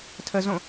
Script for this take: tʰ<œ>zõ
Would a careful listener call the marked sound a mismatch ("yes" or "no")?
yes